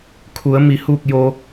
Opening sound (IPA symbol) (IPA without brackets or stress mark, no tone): kʰ